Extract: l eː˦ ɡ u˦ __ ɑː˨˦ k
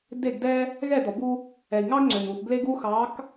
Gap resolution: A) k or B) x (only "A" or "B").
B